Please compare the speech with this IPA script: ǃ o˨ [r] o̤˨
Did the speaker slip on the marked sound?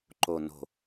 yes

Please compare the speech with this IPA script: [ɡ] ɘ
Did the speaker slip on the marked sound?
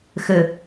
yes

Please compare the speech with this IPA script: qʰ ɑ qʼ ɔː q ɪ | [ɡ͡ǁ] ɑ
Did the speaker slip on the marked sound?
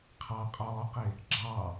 no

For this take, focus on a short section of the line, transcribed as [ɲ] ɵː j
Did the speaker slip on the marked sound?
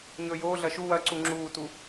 no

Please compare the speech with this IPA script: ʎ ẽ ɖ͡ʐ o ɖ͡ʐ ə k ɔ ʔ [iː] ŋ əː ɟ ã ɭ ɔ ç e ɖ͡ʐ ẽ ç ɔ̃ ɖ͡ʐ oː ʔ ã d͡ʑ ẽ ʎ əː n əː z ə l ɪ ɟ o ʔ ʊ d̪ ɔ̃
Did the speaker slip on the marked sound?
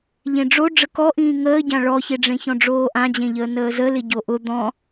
yes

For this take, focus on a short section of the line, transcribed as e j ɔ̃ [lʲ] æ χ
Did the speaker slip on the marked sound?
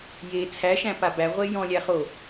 no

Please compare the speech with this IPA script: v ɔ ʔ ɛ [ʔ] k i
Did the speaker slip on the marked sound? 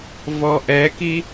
yes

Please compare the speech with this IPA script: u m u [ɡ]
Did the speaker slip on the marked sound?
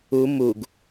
no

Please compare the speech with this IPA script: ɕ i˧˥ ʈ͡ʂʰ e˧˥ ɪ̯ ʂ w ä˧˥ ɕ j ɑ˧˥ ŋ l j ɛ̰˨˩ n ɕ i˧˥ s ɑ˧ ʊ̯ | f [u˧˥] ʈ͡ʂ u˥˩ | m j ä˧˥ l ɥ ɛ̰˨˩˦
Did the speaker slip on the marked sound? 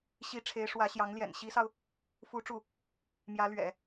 no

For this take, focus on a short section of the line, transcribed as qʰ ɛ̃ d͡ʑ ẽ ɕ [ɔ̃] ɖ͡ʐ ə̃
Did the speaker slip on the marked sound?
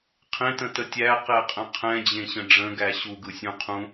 yes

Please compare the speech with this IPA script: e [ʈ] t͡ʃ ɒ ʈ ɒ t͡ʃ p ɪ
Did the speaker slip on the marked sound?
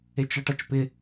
yes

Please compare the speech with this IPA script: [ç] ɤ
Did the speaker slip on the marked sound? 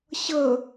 yes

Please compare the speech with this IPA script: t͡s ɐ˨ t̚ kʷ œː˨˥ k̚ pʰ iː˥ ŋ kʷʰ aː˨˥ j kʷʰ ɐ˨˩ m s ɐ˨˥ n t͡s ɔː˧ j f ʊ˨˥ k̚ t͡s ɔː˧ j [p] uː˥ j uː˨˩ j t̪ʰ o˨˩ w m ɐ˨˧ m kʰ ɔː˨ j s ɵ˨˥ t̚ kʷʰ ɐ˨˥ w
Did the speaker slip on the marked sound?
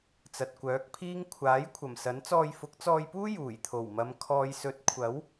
no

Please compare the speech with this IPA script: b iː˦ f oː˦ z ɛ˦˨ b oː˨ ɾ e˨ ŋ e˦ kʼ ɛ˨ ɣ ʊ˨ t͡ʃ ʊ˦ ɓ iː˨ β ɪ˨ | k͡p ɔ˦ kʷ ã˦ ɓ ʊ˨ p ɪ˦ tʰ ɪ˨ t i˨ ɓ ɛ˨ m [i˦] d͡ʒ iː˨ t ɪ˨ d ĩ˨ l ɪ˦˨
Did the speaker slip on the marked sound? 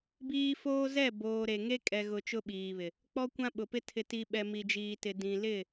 yes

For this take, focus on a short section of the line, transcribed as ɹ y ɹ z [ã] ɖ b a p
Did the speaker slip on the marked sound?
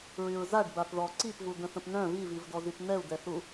yes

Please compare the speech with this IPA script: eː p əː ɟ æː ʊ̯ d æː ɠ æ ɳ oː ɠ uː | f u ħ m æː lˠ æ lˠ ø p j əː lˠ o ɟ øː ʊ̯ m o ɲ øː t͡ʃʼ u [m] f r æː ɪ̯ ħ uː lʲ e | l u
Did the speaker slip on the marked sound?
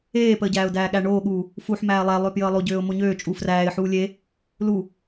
yes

